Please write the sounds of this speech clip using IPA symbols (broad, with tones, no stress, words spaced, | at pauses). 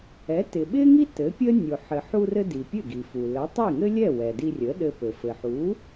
ɛ˩˥tɪ˩ ɓɪ˥ŋi˥ tɘ˩˥pʲə˥ nʲo˩ħɘ˩ħu˧rɘ˧ di˩pʲɘ˥˩ɡi˩fu˩ lə˩˥tˤi˥˩ŋɘ˥lʲɛ˥˩ wɛ˩di˧rʲə˩˥ ɗɘ˧pɘ˩ fɘ˩ħu˩˥